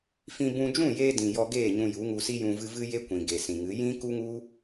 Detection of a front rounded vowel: absent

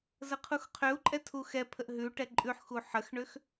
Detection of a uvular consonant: present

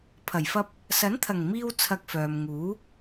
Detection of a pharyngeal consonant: absent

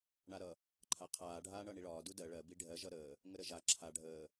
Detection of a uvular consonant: present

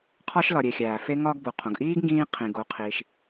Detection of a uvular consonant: present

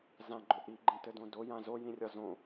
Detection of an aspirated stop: absent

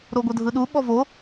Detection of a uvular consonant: absent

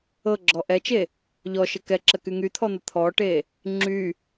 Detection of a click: present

